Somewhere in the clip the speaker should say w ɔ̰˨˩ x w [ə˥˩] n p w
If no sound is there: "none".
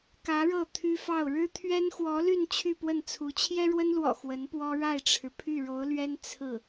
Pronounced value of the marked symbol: ə˧˥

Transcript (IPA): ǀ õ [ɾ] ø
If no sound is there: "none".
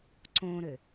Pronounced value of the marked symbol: ɾ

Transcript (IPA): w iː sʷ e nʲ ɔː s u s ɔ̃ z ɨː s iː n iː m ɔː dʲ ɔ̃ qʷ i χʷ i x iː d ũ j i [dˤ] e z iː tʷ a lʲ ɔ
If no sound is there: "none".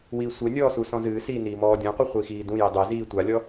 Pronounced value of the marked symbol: dˤ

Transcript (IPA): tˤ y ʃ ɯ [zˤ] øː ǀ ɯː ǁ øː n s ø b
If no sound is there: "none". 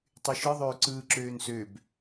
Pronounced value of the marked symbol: ðˤ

